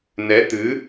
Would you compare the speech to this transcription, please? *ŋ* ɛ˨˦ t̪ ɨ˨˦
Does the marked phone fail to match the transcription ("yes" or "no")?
yes